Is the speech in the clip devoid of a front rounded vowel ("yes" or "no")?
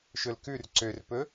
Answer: no